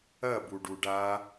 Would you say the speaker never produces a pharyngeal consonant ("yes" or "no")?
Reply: yes